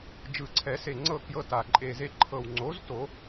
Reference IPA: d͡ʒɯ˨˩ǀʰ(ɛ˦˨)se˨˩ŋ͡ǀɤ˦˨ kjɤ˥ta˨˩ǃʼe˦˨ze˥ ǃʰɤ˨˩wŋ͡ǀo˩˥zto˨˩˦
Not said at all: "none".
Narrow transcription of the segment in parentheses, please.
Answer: ɛ˨˩˦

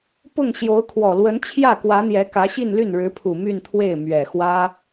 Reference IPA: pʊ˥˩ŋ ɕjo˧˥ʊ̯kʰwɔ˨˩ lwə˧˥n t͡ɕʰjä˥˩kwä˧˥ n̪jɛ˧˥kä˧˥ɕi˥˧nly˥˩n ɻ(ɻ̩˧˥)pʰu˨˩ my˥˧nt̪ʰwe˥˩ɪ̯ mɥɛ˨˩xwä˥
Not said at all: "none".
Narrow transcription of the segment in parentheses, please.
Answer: ɻ̩˧˥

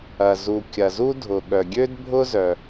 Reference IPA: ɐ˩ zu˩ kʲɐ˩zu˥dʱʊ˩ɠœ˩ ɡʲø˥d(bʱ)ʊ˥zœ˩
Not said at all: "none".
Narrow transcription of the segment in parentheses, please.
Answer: bʱ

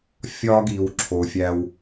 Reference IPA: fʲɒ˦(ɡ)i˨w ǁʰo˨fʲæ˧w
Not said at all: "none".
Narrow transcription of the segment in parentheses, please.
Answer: ɡ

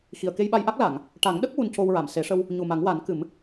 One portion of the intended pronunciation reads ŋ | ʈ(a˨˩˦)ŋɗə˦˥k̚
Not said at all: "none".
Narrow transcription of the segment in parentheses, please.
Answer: a˨˩˦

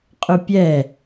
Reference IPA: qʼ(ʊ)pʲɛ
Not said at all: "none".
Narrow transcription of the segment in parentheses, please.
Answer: ʊ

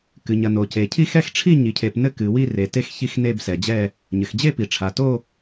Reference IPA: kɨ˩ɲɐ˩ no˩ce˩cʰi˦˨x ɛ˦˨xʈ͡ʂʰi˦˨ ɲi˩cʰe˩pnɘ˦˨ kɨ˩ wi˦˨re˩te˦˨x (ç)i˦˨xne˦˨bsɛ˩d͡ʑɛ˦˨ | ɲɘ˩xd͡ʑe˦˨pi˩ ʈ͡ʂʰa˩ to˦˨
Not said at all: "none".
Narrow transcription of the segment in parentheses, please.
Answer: ç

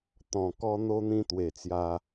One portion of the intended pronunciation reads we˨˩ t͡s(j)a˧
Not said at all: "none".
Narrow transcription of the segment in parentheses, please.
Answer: j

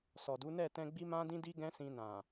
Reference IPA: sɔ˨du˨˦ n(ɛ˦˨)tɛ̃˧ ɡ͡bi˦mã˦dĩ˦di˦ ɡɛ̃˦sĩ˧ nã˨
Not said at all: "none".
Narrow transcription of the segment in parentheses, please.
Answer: ɛ˦˨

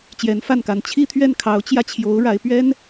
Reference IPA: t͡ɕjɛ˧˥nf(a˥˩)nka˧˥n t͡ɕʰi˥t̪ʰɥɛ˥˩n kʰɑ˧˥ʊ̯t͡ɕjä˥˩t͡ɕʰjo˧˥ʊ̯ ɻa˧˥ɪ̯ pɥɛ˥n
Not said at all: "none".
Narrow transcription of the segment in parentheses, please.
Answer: a˥˩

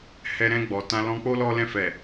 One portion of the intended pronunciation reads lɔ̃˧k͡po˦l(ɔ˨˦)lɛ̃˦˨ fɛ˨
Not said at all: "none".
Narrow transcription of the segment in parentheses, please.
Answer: ɔ˦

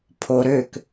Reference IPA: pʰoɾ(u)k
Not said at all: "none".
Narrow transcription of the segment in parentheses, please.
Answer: ø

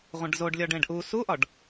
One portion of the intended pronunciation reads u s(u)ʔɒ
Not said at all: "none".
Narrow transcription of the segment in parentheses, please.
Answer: u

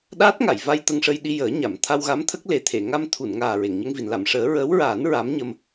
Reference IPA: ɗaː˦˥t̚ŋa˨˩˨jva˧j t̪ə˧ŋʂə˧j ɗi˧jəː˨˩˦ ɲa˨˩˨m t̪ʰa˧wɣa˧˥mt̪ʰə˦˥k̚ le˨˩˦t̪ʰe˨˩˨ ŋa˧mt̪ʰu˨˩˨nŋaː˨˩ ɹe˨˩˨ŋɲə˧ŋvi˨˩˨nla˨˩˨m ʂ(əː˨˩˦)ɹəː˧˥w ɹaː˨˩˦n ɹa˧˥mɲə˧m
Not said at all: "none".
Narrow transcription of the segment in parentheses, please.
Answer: əː˨˩˦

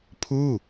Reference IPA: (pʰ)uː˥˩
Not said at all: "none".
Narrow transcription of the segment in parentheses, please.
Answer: pʰ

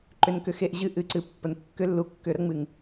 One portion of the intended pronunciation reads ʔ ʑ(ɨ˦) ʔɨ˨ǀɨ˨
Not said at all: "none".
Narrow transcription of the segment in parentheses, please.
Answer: ɨ˧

